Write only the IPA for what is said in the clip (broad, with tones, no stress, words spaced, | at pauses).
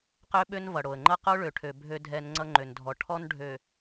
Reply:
qø˦ɓø˦n vʌ˨ɽo˨ə̯ŋ͡ǃʌ˦ qo˦ɭø˨ʈʰø˨ bʱø˦dʱɛ˦n ŋ͡ǀʌ˦ŋ͡ǃø˨ndʱɔ˨ ʈʰɔ˦nɖʱø˨